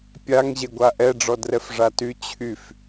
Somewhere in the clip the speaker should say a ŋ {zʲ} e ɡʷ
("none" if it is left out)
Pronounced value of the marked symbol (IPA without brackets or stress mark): ʑ